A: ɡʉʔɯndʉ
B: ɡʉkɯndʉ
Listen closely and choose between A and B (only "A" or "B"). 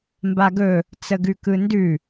B